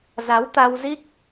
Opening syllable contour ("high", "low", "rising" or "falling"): rising